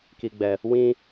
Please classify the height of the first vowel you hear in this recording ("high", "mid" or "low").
high